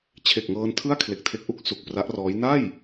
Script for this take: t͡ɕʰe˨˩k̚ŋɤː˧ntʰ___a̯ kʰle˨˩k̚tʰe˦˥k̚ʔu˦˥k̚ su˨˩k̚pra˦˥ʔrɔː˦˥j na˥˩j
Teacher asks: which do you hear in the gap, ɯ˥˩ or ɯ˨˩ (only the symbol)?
ɯ˥˩